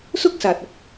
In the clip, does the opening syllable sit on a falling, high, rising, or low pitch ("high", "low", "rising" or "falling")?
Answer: high